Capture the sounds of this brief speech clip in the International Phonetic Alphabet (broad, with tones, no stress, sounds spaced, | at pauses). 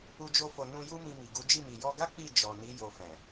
u˧ d͡ʒ o˧ f o˨ n ũ˧ j u˦ m ĩ˧ m i˨ ɡ u˨˦ d͡ʒ i˦˨ m i˨ j ɔ˧ ɡ a˦ k͡p i˦˨ d͡ʒ ɔ˨ n i˨˦ j o˧ f ɛ̃˨